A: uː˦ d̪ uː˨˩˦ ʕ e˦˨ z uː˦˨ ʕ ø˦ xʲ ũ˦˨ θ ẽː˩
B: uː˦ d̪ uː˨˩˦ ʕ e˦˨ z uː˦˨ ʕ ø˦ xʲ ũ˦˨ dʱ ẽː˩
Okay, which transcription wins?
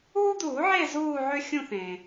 A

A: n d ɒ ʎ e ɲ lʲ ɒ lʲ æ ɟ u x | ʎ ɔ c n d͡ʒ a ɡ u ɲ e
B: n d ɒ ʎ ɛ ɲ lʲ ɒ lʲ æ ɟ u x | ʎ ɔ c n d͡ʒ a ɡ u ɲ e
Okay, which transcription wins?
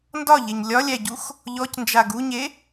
A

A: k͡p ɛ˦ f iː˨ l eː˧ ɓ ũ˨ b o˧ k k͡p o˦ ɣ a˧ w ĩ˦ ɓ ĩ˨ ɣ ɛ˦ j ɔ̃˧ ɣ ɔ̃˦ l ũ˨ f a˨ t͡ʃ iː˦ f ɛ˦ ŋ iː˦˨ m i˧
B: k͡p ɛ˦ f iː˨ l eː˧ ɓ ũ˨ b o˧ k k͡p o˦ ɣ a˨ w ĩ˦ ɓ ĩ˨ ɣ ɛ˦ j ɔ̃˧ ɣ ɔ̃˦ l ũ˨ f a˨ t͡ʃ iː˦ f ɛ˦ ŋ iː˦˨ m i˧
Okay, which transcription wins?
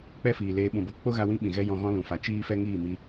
A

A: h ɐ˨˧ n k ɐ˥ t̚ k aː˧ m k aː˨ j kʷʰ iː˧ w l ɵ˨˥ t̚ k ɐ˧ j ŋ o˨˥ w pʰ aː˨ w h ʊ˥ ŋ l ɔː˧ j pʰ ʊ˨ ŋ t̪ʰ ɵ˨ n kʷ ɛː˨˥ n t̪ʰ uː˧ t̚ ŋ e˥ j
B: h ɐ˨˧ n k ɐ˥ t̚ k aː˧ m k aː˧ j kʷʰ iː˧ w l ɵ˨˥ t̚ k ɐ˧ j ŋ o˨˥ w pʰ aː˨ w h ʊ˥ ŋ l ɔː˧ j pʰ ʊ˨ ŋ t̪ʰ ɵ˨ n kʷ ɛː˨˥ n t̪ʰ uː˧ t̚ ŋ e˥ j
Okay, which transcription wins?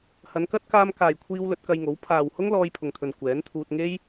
A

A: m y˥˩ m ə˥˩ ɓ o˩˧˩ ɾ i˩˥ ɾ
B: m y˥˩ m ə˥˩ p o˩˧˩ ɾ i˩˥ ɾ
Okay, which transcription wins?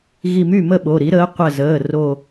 A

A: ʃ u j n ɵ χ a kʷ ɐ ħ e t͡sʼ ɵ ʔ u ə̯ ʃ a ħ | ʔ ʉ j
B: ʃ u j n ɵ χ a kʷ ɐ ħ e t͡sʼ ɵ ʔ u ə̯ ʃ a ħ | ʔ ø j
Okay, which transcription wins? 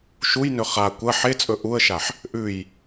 A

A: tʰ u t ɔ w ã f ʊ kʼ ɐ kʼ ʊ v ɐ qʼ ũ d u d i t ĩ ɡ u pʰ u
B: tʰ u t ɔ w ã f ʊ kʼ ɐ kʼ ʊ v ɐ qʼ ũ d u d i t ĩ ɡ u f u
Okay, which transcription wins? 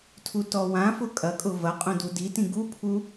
A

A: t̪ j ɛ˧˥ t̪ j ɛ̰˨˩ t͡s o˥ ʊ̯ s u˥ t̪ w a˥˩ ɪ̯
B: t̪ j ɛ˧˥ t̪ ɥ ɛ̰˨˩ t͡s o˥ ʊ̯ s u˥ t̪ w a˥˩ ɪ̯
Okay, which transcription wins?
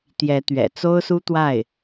B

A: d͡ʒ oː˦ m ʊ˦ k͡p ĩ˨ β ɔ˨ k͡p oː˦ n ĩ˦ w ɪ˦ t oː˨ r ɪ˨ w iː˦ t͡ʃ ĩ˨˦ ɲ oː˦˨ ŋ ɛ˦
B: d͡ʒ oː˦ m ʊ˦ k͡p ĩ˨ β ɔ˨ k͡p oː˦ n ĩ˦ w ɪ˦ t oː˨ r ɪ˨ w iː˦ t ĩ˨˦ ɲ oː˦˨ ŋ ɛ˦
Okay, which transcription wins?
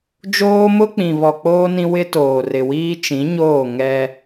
A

